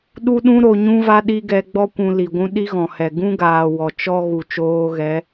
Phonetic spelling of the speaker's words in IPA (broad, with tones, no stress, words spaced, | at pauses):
ɗu˦ɗũ˦ ɾo˦ ɲũ˦va˦ ɗi˦ɡɛ˧ɡ͡bɔ˦ kʷũ˧li˨ɡʷũ˦ ɗi˦ɣɔ̃˨hɛ˨ ɡũ˦ɡaː˨ wɔ˨t͡ʃɔ˦ ɣu˨t͡ʃoː˧ɣɛ˨˦